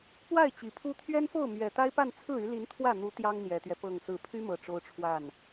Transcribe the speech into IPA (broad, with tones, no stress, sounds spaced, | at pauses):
p w a˥˩ ɪ̯ t͡ɕ i˨˩ pʰ u˥ t̪ʰ ɥ ɛ˥ n f o˥˩ ʊ̯ m ɥ ɛ˨˩ t̪ a˥ ɪ̯ p a˥˧ n t͡sʰ ɹ̩˥˩ y˧˥ l i˧˥ n t̪ʰ w ä˥˩ n̪ u˧˥ t̪ j ɑ˥ ŋ n̪ j ɛ˨˩ t̪ ɥ ɛ˦ p ɤ˥˧ ŋ s ɹ̩˥˩ pʰ y˥ m ɤ˨˩ ʈ͡ʂ o˥ ʊ̯ ʈ͡ʂʰ w a˥˩ n